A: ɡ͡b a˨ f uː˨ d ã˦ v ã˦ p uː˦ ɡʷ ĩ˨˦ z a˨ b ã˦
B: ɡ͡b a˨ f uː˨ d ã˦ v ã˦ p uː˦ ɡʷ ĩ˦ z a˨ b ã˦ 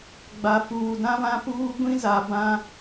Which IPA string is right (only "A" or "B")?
B